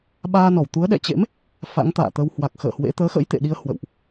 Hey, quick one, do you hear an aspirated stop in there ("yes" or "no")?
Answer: no